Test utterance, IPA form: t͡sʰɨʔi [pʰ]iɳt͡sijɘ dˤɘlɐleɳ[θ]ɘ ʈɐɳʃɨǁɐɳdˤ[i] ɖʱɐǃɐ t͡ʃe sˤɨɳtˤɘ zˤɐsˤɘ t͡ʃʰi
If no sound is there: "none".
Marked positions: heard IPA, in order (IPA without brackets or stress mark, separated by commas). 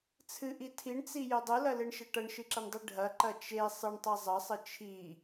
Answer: tʰ, ʃ, i